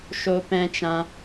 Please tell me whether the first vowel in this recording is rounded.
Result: yes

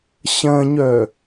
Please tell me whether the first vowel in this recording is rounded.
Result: no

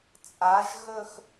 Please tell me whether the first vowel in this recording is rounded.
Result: no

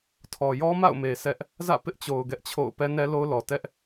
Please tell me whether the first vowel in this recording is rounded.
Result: yes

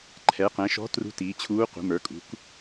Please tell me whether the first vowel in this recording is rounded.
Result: no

